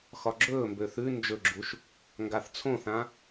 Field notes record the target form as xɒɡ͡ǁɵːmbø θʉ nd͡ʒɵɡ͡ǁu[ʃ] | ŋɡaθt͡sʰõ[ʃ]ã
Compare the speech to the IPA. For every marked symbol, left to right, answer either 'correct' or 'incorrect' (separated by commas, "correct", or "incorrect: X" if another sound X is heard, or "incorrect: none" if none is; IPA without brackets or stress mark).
correct, incorrect: θ